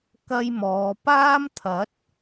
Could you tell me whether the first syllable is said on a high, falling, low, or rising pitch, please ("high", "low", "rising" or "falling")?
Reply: high